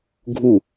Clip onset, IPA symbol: ɡʱ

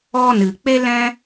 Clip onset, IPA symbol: ɔ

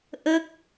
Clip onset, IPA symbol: ʔ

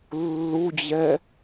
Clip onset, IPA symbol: lː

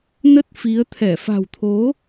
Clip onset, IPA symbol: n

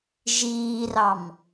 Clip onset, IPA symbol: ʒ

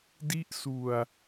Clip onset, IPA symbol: d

